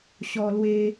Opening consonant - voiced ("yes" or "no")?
no